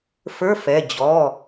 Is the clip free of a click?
yes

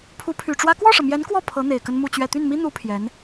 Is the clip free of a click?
yes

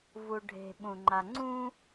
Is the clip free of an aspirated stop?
yes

